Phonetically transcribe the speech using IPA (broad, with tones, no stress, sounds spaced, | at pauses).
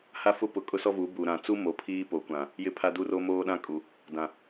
h a˦ f ʊ˦ p ʊ˨˦ kʼ ʊ˦ s ɔ˦ v u˨˦ b u˨ ɾ ã˨ t͡s u˦ m o˨˦ pʰ iː˦ p o˨˦ kʷ ã˨ | j ɪ˨ pʰ a˨ d u˨ r o˦ m oː˦ ɗ ã˦ kʼ u˨ | d ã˨